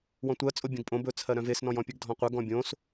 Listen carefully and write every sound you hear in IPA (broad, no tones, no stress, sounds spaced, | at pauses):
w ɔ̃ tʷ ɜ t͡sʼ o bʲ œ̃ ɡ pʼ õ b ɵ t͡sʰ ɜ ɾ œ̃ v e s n ɔ̃ j ɔ̃ pʲ ɘ ɡ dʱ ɔ̃ qʷ ɜ ɡ ɔ̃ bʲ õ s